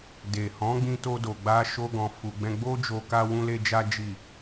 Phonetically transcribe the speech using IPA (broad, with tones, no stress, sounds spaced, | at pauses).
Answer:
d e˨ h ɔ̃˨˦ ɡ͡b ĩ˧ t o˧ d o˨ ɡ͡b a˧ ʃ o˦ ɡ ɔ̃˧ f u˧ ɡ͡b ɛ̃˦ ɡ͡b o˦ d͡ʒ o˧ k a˦ w ũ˦ l e˦ d͡ʒ a˦ d͡ʒ i˦˨